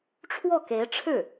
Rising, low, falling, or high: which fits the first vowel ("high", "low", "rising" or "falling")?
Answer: falling